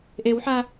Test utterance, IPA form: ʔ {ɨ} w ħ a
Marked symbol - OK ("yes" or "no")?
no